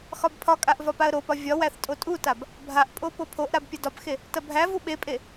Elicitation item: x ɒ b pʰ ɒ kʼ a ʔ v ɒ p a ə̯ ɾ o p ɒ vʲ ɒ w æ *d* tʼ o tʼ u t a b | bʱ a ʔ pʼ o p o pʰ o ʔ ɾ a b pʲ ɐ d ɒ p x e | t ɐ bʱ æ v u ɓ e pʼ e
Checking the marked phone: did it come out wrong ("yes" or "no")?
yes